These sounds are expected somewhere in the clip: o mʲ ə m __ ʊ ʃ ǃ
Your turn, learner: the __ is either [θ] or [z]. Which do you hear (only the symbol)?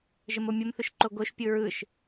θ